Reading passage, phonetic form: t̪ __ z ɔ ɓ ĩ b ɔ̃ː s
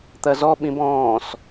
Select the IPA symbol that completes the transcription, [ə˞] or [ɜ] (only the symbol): ɜ